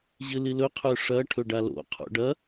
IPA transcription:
ʑɨlilɵ qʰɵʂɐ ʈʰɵɖalo̰ qʰo̰ɖɐ

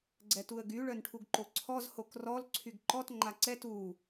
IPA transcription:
ɡ͡ǀɛtuə̯ɡy ɭœnʈʰuɡǃoǀʰɔz hokrɔl ǀʰyɡǃɔt ŋ͡ǃaǀɛ tu

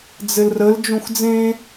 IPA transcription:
d͡zɘlrəl d͡ʒõxd͡zẽ

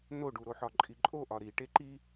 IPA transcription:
noɖuɾoħɒ ǃʼiǃʼoʔɒ ɾi ʈeǃi

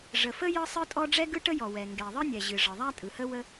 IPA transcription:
ʐə˩fə˥ jɤ˥sˤɯ˥tʼɔ˥ ɖ͡ʐɛ˥ɡɯ˥ ʈə˥jɔ˩wɛ˩ ŋɡɛ˩ðˤɯ˥nʲɛ˩ʑɨ˩ ʐɤ˩ðˤæ˥tʼɯ˩hə˥ wə˥

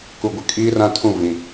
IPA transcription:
ku˨ɡʷɪ˨ kʼiː˦rã˦tʰũ˦˨ vĩ˨

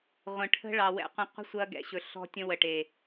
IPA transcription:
ʁʷə̃˨ʈʰə̤˦ ɭɑ˨wɛ̰˨˦qʷə̃˧ qʷə̤˦sʷɐ˧ɡɛ̰˨ɕɵ˨ ɬɔ̤˦tʲə̃˦wə˨ʈe˨

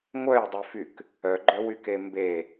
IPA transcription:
ŋʷœjdˤyfyk | œɡ͡ǃœwyke mbe

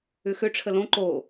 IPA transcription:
ʏxø ʈ͡ʂʰəlõ ǃo

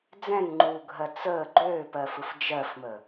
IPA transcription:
d͡zɛ̃ŋŋ͡ǃuːɡʱɜ t͡səː ɡ͡ǃøːpɜfɯf d͡ʒɜfmə

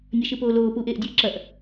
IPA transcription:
nʲɐʃɨpoːloː puːʔeːʔdʲəː ǁɐʔ

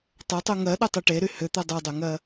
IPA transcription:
tˤʏtˤu ŋɜɗɵtˤu ʈeɾy hʏt̪ɵ dˤudˤyŋɜ

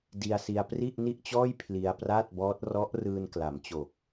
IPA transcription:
di˧a̯si˧a̯ pri˥˩ʔ ni˥˩ʔt͡ɕɔː˥˩j pʰli˧a̯praː˥˩t̚bɔː˦˥t̚ rɔ˦˥ʔ rɯː˧n kla˩˦mt͡ɕo˨˩k̚

